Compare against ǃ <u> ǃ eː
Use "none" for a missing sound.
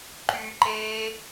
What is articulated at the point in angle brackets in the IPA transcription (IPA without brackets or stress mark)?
y